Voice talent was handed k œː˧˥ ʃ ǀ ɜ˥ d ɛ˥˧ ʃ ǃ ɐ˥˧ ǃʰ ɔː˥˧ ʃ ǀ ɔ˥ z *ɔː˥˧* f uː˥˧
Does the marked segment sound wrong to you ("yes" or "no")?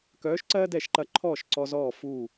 no